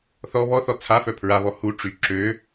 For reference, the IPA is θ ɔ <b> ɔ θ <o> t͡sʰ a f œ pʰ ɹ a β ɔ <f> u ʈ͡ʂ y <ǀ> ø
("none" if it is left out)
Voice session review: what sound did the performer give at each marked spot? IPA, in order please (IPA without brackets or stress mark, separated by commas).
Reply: β, ɔ, h, ǁ